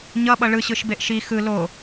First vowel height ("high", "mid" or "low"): mid